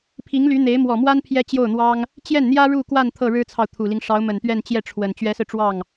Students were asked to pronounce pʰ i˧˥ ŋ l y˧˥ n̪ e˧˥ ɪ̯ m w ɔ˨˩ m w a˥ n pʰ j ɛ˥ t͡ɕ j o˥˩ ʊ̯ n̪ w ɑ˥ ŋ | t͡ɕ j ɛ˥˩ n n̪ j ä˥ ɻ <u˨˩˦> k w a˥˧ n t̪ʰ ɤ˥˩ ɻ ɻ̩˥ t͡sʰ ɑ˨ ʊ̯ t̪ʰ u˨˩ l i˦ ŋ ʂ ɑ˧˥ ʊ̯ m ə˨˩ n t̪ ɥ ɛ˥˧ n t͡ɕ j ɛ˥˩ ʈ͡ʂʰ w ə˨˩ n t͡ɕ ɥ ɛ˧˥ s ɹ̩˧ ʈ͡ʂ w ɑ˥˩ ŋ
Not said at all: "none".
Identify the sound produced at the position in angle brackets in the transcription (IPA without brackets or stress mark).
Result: u˥˧